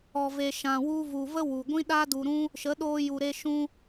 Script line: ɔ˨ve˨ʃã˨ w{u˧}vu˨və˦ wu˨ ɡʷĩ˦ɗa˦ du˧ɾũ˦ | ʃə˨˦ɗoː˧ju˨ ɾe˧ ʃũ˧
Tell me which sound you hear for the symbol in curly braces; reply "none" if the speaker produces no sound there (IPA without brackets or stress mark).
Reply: u˧